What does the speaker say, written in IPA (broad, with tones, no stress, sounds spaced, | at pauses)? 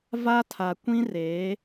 v a˦ tʰ a˨ kʷ ĩ˦ r eː˨˦